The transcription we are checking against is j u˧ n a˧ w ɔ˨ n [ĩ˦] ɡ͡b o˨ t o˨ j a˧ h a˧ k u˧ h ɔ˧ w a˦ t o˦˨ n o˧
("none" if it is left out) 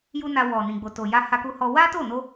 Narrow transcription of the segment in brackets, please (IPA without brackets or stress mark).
ĩ˨